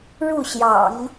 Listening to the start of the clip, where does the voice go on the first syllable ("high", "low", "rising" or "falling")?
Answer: falling